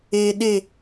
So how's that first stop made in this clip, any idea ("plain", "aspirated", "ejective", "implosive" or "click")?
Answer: implosive